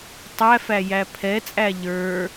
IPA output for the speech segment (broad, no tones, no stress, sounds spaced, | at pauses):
tˤ æ f æ j æ pʰ ɛ t͡sʼ æ ʎ ə˞